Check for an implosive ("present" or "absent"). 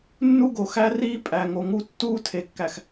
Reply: absent